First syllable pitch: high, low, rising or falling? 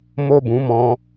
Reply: high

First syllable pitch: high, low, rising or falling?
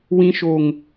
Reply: high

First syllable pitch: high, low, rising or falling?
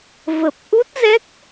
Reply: low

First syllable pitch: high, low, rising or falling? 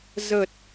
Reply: low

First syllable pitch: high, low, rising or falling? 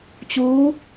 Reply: rising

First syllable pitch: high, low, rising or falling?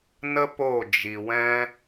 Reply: high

